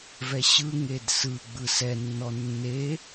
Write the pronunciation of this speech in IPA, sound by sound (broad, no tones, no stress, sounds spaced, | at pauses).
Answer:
v ɛ ɕ ɯ ŋ e d s ɯ ɡ͡b ɯ s ɛ nː ɔ nː e